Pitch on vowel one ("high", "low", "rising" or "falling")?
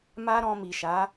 high